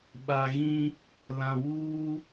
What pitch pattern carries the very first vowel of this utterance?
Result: low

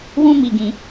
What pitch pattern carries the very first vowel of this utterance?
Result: high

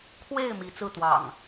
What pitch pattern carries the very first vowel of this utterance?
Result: falling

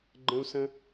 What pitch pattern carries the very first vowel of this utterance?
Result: high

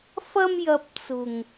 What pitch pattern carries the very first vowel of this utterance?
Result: high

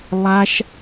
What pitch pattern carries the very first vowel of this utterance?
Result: high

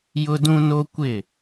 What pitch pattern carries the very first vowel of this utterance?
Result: high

